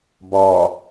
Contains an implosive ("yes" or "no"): no